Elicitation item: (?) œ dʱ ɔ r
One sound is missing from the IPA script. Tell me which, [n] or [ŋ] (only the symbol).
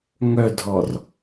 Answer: ŋ